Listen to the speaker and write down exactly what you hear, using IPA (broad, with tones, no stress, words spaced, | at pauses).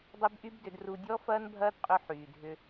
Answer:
dˤʏ˦bʔy˦bdʏ˧d ru˧dʲɔ˦fɐː˦n bʱɐː˦dqʼʏ˧ ħyː˨dʱʏ˧